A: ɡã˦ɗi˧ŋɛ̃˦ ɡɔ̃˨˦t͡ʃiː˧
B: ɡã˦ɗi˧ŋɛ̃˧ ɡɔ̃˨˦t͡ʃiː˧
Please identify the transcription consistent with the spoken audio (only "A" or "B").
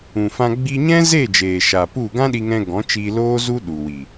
B